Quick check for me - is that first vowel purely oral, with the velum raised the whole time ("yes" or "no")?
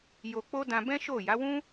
yes